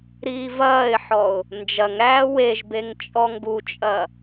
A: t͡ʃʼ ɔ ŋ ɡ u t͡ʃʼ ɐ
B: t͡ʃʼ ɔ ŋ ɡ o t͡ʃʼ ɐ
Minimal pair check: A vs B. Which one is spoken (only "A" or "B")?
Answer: A